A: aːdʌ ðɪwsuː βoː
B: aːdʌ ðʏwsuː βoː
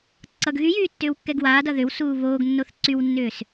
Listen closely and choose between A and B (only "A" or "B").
B